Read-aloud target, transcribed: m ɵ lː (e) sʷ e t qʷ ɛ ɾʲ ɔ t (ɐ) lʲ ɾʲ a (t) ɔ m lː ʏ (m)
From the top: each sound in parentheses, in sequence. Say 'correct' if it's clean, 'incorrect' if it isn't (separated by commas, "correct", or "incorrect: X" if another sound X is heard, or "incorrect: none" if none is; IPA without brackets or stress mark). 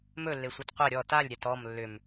correct, incorrect: a, correct, correct